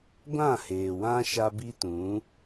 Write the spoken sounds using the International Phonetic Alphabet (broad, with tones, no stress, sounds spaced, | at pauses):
ɡʷ ã˦˨ h eː˨ w ã˦ ʃ a˦ b i˦ t ũ˨˦